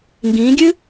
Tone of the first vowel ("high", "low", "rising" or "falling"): rising